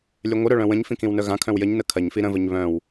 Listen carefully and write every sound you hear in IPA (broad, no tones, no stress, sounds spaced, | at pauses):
lʲ œ ŋʷ ə ɾ œ ɭ œ̃ w ə̃ ɲ f ĩ k ĩ w n œ ɣ ã kʰ œ̃ w j ə ɲ n ə kʰ ɐ ɲ f i ɾ ə̃ v ə ɲ β œ̃ w